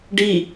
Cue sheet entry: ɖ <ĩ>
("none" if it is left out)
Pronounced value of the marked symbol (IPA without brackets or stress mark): i